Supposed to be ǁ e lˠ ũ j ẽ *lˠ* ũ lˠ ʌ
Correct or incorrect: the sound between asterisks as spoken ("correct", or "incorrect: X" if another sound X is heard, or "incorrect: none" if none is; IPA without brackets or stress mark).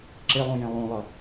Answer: correct